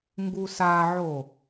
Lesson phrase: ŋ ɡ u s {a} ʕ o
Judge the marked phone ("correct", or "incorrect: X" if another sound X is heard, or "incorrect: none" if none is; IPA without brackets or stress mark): correct